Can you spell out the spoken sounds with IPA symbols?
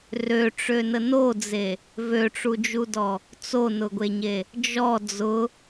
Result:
røʈ͡ʂønə nod͡ze | vøʈ͡ʂud͡ʒudɔ | t͡sonʊɡʷeɲe | d͡ʒɔ d͡zʊ

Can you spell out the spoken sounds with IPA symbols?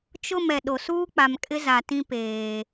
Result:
t͡ʃʊ˦˨m ɛ˨ɗo˨ suː˦k͡pa˨mkʼɪ˦ za˨tĩ˦peː˨

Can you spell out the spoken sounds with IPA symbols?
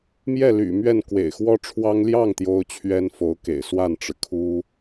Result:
mjɛ˥˩ly̰˨˩mɥɛ˥˩n kwḛ˨˩ɪ̯xwɔ˥ʈ͡ʂʰwɑ˥ŋ ljɑ˥˩ŋ t̪jo˥ʊ̯t͡ɕʰɥɛ˥nfo˧˥ʊ̯kḛ˨˩ɪ̯ swa˥˩nʈ͡ʂɻ̩˩kʰu˥

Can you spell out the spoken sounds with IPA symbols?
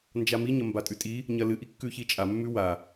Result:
nd͡ʒamiɲɐ mbatʼʉtʼi | ɲɐlɨʔi kːʉçit͡ʃʼa mːʉwa

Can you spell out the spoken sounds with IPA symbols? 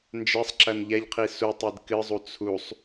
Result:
nd͡ʒɛsˤǁɐn ʎɛʎqʰi su tˤidkɨzˤu t͡sʰusˤ

